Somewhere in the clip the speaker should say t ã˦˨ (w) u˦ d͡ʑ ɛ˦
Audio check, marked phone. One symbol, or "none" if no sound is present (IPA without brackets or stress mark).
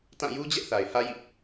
j